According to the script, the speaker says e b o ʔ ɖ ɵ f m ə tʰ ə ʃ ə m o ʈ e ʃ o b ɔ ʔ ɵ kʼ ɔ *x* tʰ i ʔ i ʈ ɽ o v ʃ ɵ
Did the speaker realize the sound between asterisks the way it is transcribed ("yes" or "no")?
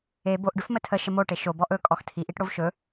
yes